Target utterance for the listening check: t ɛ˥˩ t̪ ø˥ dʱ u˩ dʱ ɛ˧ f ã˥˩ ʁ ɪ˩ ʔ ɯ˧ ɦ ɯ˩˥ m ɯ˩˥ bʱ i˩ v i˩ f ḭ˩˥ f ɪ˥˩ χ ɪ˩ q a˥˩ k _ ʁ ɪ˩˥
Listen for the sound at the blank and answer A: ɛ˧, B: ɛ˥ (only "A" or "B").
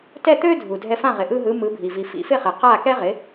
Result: B